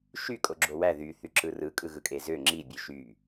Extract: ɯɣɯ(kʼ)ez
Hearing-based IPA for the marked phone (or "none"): kʼ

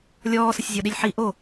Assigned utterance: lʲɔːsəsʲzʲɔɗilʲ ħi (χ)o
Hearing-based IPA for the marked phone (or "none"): ʔ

